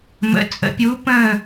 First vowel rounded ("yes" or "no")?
no